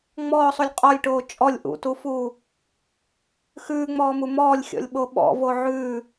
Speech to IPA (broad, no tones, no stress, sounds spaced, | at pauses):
ŋ͡m ɔː sˤ u lʲ qʼ ɔ lʲ ʈ oː t͡ʃʼ ɔ lʲ ʔ ṵ t u f uː | x ʉː ŋ͡m ɔː m u m ɔː lʲ xʲ ɔ̰ lʲ ɓ o ɓ ɔ̰ v o ʕ ʉː